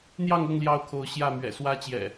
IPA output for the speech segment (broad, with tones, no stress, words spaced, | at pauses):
n̪jɑ˥˨ŋɤ˥˨ŋ ljɑ˥˨ʊ̯kʰo˨˦ʊ̯ɕjä˥˨mɥɛ̰˨˩ swä˦t͡ɕjɛ̰˨˩